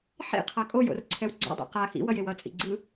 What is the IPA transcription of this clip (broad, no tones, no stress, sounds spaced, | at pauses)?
ħ ḭ qʰ a kʼ o j o̰ r ǀʰ ɛ w ɡ͡ǀ a̰ dˤ ḭ q a x ḭ w ʌ j e w ʌ t͡sʼ ḭ ɡ͡ǀ ɯ